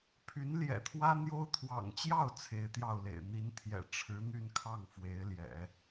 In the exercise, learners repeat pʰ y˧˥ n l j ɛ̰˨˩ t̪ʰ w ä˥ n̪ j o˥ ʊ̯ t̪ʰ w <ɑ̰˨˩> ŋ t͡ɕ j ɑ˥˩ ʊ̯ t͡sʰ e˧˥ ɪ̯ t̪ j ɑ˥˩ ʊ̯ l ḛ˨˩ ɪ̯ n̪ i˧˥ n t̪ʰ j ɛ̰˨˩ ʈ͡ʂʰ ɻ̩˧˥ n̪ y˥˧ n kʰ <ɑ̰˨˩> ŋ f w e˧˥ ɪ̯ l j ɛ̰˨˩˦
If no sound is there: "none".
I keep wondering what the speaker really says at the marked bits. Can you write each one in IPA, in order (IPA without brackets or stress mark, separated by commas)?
ɑ̰˨˩, ɑ˥˩